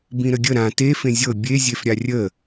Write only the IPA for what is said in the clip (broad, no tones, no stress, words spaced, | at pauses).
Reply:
bĩɾəɡʲə ɾã te fẽzʲɤ bʲe zʲefɾʲarʲə